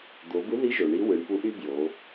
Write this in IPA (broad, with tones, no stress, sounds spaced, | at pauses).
d̪ o˩˧ b ɯ˧˥ ð i˧˥ ʒ o˩ ɳ i˧˥ w ɯ˩˧ ɳ p u˧˥ ʔ y˥ b j o˩˧